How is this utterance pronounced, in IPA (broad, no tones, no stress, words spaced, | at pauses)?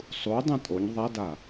sˤu dˤɛ̃tʼoɲ ðˤada